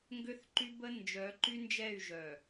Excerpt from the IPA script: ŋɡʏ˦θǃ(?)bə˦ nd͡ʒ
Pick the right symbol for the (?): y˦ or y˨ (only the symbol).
y˦